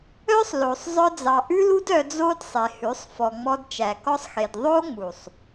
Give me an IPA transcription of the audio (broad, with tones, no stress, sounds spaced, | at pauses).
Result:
œ˦ sˤ l o˨ sˤ zˤ œ˧ d͡z ɑ˨ ʔ ʉ˦ l u˦ d œ˧ d͡z o˦ d sˤ e˨ h ʉ˨˦ sˤ f ɔ˨ ŋ͡m ɔ˧ d t͡ʃ æ˨ k ɔ˦ sˤ x e˨ d ðˤ o˦ ŋ͡m u˨ sˤ